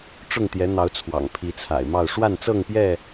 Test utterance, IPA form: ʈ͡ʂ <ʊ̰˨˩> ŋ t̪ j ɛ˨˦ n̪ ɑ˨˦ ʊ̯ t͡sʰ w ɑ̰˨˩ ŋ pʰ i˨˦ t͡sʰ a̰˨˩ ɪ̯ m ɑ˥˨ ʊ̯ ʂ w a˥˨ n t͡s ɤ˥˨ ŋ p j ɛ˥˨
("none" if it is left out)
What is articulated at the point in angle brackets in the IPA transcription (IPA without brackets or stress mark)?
ʊ˥˨